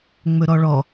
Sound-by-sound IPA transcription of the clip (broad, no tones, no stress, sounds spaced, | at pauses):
ŋ͡m ɵ ɾ ɔ ɭ ɔ